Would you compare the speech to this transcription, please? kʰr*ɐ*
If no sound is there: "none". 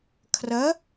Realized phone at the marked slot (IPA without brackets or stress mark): ɐ